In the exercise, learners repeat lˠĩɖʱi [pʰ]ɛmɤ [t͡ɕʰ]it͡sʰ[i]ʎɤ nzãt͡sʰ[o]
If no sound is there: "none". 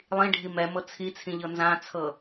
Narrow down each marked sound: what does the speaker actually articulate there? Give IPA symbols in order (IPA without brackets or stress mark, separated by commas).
m, t͡sʰ, ĩ, ɤ